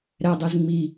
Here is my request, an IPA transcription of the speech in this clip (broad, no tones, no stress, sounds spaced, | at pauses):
ɾ ɛ dˤ e z ŋ͡m i